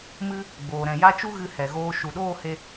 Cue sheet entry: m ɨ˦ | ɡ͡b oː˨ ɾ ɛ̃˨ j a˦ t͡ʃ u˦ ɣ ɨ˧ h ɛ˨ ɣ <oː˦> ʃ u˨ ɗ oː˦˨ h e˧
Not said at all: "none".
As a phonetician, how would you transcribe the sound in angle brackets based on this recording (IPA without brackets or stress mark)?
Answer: oː˧